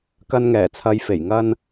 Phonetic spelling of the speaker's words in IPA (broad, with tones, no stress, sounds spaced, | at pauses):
k ɐ˧ n ŋ ɛː˨˩ t͡sʰ ɐ˨˧ j f e˨˩ j ŋ ɐ˧ n